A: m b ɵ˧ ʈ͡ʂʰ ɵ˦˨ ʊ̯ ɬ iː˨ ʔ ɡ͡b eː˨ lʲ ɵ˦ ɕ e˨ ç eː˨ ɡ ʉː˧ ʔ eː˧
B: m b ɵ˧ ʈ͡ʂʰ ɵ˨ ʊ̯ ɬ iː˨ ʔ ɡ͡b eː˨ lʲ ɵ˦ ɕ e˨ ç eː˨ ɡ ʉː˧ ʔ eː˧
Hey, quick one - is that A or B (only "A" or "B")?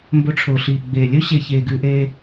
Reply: B